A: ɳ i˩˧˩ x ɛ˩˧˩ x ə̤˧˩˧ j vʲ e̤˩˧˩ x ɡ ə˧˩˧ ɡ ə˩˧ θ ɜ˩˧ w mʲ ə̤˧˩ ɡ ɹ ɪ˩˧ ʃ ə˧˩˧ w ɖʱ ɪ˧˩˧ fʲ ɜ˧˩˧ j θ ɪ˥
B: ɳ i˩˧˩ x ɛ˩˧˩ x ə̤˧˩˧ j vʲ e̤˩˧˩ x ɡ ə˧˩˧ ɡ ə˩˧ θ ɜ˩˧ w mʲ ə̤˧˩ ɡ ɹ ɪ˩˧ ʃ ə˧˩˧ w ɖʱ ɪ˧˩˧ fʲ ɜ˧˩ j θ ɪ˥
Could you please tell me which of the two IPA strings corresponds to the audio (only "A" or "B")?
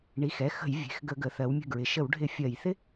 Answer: A